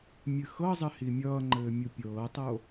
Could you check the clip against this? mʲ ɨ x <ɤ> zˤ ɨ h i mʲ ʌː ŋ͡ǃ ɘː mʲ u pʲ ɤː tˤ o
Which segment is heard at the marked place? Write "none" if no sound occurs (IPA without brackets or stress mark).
ɤ